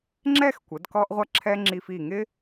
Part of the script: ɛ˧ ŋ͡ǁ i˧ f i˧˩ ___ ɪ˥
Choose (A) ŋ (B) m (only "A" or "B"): A